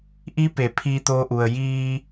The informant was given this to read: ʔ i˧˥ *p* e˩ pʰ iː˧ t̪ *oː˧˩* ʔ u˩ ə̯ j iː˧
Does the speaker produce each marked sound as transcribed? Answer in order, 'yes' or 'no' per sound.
yes, no

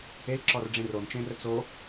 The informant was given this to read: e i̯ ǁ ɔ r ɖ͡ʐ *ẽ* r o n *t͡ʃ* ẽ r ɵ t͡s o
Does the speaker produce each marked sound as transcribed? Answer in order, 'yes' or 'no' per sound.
yes, yes

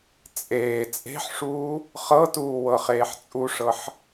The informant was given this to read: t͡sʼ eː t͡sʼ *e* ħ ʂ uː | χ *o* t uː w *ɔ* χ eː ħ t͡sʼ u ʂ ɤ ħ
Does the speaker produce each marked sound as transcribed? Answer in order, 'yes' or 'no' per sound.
no, no, no

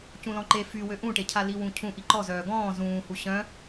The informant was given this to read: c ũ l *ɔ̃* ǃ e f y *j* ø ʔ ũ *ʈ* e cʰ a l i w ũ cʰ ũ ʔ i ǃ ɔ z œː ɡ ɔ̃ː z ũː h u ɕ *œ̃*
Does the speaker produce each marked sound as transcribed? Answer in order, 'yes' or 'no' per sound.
yes, no, yes, yes

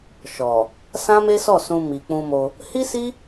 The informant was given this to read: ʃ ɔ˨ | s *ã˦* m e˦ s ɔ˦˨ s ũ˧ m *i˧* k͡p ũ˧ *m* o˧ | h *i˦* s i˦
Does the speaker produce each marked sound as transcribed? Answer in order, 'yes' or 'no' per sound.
yes, no, yes, yes

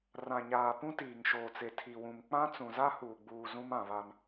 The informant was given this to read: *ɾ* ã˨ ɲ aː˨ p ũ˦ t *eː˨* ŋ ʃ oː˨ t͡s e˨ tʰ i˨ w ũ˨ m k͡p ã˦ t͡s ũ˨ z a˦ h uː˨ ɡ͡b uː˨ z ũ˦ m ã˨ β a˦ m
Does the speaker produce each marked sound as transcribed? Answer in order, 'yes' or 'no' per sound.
no, no

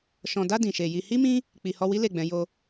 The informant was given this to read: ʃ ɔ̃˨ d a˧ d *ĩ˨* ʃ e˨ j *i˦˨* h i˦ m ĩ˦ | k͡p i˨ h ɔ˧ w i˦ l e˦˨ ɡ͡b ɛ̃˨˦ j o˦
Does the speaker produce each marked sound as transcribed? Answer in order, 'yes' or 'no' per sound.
yes, no

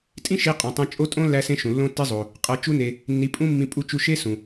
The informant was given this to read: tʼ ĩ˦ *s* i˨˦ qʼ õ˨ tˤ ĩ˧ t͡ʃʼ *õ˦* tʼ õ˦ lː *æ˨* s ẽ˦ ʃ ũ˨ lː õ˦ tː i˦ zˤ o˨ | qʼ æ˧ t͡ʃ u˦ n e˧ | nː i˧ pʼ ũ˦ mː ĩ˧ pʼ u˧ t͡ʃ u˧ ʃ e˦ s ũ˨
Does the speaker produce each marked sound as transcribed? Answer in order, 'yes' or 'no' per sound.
no, no, no

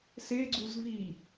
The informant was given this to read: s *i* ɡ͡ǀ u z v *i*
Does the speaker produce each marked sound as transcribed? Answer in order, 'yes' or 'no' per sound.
no, yes

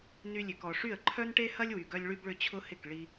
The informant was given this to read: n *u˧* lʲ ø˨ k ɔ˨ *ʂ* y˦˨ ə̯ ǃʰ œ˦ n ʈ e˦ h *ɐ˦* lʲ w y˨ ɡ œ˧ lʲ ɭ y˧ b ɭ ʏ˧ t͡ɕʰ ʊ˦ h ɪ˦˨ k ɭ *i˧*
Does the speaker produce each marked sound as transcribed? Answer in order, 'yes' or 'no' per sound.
no, yes, yes, yes

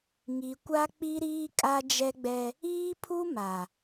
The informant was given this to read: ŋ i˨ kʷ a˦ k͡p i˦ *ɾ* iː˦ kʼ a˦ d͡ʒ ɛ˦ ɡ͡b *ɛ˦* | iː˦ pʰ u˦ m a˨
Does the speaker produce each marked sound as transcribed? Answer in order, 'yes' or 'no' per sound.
yes, yes

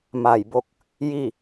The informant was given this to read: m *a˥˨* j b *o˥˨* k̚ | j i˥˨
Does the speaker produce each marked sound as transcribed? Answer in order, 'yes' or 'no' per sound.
no, yes

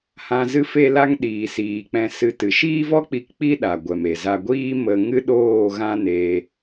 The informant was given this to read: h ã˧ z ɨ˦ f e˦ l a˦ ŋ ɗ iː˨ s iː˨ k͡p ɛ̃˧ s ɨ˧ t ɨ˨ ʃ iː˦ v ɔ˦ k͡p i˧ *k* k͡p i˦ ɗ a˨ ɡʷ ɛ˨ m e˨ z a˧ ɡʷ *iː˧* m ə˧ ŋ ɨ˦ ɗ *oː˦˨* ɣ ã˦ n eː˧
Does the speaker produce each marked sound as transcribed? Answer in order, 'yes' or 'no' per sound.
yes, no, yes

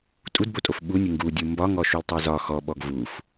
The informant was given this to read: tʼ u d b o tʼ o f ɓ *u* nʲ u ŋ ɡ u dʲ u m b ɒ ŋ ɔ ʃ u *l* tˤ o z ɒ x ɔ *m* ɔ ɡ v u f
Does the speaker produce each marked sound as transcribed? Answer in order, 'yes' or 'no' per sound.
yes, yes, no

